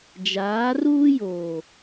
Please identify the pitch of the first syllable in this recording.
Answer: rising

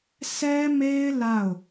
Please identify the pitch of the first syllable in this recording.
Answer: high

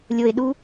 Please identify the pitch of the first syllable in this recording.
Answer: low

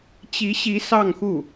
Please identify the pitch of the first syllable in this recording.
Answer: rising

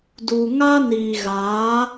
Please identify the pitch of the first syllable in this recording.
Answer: low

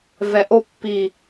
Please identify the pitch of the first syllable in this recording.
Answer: low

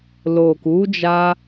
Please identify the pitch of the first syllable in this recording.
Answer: low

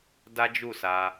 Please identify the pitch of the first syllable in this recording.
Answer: high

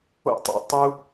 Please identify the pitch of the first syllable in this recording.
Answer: falling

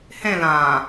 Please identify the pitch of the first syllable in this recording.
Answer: falling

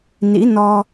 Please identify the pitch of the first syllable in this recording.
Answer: rising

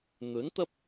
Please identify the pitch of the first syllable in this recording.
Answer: rising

